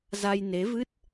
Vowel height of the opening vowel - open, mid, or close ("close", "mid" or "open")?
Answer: open